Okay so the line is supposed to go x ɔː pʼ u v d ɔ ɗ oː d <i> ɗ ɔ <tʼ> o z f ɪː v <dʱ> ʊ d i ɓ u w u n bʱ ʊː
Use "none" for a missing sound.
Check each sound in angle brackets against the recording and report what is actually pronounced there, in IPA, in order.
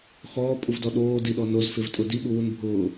i, n, tʼ

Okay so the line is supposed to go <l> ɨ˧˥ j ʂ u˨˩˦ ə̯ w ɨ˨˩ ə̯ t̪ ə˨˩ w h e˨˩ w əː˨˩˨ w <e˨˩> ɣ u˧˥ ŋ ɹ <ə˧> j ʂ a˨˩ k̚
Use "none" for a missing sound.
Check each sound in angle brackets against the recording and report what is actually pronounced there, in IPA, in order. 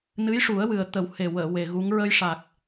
n, e˨˩, ə˧

